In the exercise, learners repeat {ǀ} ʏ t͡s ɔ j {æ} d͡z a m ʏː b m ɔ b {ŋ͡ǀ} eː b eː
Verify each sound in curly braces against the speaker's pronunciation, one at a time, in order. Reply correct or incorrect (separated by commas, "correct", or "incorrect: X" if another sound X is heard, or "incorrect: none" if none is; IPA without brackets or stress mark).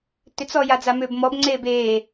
incorrect: t, incorrect: a, correct